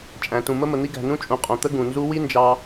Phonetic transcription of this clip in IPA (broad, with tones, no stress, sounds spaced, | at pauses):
t͡ʃʼ æ̃˨ t ũ˨ m ə˦ m ə˨ n̪ i˦ ɡ æ̤˨ n ũ˦ t͡ʃʼ ũ˨ qʼ õ˨ t̪ ə˦ ɡ ũ˨ n z u˦ w i˦ n d͡ʒ ɑ˦